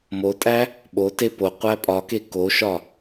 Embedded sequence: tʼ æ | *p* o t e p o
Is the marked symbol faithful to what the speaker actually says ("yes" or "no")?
no